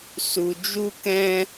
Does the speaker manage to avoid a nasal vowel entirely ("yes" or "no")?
no